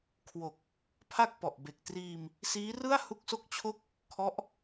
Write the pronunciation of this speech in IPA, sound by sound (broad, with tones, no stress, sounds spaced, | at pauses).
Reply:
kʰ w o˨˩ k̚ | pʰ a˥˩ k̚ p ɔ˨˩ ʔ b e˨˩ k̚ t r iː˧ m | s iː˦˥ r ɯ˥˩ a̯ h u˥˩ k̚ s o˥˩ k̚ t͡ɕʰ o˥˩ k̚ | kʰ ɔ˦˥ ʔ